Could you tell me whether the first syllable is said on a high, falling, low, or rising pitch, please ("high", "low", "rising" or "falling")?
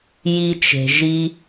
high